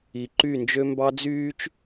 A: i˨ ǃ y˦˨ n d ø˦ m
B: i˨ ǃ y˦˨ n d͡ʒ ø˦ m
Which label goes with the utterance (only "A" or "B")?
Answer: B